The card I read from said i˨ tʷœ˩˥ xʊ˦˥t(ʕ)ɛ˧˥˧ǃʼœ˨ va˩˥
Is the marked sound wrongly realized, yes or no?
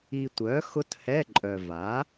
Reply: yes